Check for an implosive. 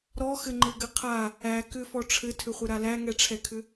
absent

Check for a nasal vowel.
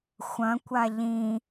present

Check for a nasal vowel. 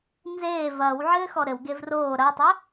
absent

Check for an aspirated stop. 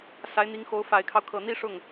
present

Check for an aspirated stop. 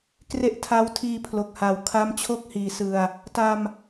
present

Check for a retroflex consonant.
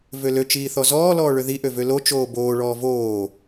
present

